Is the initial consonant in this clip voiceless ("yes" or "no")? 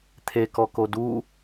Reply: yes